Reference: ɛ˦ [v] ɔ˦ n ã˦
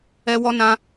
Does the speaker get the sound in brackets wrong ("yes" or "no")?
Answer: yes